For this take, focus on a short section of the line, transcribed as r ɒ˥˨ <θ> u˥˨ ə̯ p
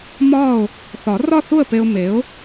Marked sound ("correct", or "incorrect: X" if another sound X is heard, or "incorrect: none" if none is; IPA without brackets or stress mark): correct